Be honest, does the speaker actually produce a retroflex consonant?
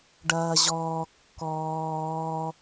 yes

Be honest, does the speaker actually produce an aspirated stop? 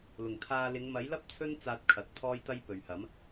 yes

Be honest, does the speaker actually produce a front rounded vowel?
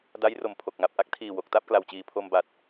no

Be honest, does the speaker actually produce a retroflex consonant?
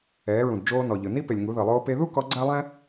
no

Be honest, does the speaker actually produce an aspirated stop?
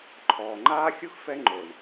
yes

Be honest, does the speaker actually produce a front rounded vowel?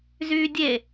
yes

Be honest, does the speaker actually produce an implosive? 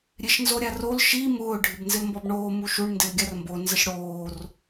no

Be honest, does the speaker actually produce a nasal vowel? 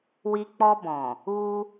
yes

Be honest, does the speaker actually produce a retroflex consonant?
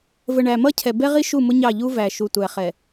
yes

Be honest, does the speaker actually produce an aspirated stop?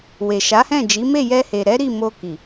no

